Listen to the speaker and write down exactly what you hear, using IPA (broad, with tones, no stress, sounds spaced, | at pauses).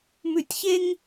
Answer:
m ʉ˦˨ tʲ ç e˥ ŋ